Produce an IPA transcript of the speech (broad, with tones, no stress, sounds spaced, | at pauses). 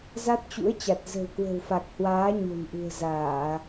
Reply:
z a˦˥ t̚ t͡ɕ ṵ˧˥ ə̯ t͡ɕ a˨˩ t̚ z ə̤˨˩ w k w ə̤˨˩ w f a˨˩ k̚ h w aː˨˦ ɲ o̤˨˩ n ʔ ṳ˨˩ ə̯ z aː˧˩˨